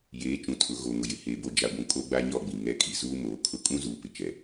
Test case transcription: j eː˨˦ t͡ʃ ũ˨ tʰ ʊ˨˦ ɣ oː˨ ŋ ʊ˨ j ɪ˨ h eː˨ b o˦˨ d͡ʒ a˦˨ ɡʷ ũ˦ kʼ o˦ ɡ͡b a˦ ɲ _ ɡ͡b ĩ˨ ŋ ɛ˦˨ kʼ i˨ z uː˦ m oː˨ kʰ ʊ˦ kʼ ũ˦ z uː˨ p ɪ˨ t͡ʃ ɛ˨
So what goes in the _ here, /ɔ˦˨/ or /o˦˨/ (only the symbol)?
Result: ɔ˦˨